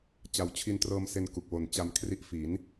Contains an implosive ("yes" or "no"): no